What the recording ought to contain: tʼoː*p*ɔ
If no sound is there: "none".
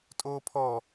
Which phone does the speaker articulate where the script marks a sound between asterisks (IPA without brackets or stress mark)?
pʰ